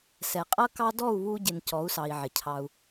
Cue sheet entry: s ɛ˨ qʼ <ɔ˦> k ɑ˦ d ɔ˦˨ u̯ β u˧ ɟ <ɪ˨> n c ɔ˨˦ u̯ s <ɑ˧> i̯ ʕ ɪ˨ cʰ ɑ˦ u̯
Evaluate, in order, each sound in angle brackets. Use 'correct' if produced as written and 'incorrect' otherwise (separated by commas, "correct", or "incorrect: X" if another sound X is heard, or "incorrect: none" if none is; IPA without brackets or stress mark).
incorrect: ʌ˦, correct, incorrect: ɑ˨